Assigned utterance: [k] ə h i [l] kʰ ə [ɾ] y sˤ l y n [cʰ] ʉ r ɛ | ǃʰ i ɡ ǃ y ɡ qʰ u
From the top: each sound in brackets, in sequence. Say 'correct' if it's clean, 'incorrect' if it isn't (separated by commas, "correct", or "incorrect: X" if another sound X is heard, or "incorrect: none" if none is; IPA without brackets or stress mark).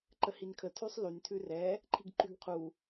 incorrect: ǃ, incorrect: n, incorrect: tʰ, incorrect: tʰ